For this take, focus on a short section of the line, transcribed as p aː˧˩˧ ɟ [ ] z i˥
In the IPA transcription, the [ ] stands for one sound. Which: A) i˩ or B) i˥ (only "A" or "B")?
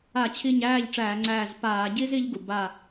B